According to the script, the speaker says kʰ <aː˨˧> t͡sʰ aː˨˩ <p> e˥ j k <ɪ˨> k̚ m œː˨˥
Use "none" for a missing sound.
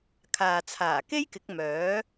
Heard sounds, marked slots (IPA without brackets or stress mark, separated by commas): aː˨, k, ɪ˨˥